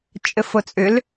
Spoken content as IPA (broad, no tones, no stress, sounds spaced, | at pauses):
t͡ʃʼ ɘ f o t͡sʼ ʏ l